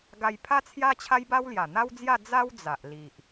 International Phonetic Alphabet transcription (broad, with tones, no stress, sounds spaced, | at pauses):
ɡ a˧ j pʰ a˦ t͡sʰ j a˦ t͡ɕʰ a˦ j b a˦ w l j a˨˩ n̪ a˦ w d͡z j a˥˧ d͡z a˦ w d͡z a˨ ʔ l i˨ ʔ